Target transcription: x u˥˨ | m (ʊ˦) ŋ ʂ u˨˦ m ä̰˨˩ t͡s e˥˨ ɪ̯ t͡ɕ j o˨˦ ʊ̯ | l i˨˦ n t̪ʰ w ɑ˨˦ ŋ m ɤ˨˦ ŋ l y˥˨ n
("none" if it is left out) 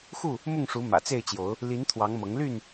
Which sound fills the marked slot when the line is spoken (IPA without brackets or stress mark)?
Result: ʊ˥˨